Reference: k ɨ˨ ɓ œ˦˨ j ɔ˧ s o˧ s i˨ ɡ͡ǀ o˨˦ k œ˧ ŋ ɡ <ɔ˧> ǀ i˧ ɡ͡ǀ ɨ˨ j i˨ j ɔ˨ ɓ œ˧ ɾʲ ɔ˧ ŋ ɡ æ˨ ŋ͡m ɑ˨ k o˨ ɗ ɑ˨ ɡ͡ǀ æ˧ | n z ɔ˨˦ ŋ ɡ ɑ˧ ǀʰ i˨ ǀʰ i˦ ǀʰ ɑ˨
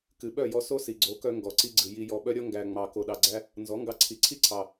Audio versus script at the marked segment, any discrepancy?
yes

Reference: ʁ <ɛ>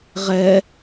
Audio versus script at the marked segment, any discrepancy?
no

